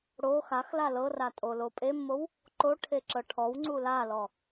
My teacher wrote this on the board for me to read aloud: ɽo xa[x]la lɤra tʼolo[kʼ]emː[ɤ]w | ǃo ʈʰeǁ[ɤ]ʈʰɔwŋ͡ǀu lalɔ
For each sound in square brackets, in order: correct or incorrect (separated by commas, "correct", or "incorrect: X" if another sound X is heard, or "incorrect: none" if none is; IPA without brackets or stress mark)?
correct, incorrect: pʼ, incorrect: o, correct